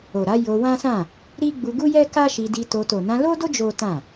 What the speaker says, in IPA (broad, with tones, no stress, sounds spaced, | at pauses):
o˨ ɾ a˨˦ j o˧ w ã˦ s ã˦˨ | ɾ i˦ ɡ͡b u˧ ɡ u˦ j ɛ˦ k a˦ ʃ i˧ d i˧ t o˧ t o˨ n ã˧ l o˦ d o˦ d͡ʒ o˦ t ã˦˨